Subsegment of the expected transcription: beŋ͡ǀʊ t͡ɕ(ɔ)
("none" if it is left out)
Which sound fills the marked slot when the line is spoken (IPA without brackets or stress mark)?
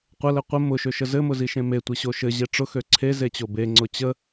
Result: ə